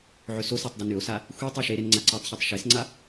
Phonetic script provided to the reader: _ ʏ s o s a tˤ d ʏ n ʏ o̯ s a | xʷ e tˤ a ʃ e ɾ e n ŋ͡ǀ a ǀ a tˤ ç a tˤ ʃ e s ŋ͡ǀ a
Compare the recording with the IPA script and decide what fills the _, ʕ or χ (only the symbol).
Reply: ʕ